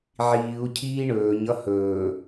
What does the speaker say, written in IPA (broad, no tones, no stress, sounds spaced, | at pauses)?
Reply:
ʕ iː u̯ cʰ iː ɳ ɵː ɲ ʌ h ɵː